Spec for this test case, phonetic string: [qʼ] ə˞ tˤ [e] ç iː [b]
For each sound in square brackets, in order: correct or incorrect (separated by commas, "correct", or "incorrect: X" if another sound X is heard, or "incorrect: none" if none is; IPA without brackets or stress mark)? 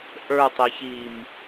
incorrect: ʔ, correct, incorrect: m